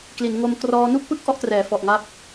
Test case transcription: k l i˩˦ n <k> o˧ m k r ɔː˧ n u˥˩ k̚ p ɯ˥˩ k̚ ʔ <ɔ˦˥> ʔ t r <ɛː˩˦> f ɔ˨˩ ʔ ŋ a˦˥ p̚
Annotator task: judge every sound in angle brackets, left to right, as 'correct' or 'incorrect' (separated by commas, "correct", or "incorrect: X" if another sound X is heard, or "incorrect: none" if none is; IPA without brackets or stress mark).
incorrect: ŋ, correct, correct